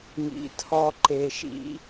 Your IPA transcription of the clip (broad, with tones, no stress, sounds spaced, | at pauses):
ŋ ḭ˨ tʰ ɔ˧ ǃ e˧ ʃ ḭ˦